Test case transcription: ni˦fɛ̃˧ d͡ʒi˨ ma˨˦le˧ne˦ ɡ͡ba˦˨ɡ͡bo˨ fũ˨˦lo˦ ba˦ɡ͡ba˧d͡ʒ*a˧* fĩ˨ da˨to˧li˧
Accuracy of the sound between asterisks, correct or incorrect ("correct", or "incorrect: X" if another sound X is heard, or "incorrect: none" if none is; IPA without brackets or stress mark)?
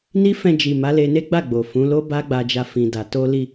correct